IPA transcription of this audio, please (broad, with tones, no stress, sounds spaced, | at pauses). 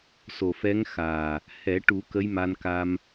s o˨˩ f ɛ˧˥ ŋ x aː˨˩ | h ɛ˨˩˦ ʈ u˨˩˦ k ə˧˥ j m a˧ n k a˧ m